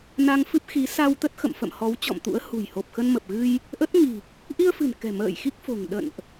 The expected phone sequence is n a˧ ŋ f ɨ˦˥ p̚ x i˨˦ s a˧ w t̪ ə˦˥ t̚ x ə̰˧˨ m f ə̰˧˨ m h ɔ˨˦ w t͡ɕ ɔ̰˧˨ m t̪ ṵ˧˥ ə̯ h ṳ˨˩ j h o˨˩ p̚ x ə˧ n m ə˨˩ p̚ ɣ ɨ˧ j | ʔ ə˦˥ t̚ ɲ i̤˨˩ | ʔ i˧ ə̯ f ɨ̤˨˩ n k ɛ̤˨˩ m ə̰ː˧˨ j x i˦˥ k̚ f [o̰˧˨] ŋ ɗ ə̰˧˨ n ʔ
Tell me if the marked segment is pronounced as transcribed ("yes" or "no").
no